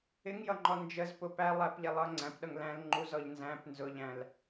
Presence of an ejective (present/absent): absent